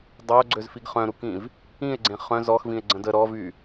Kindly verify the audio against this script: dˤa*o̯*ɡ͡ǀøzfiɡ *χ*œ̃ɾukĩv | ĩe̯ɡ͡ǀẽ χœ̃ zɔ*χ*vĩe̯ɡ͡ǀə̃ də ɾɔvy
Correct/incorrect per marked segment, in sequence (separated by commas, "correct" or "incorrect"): correct, correct, incorrect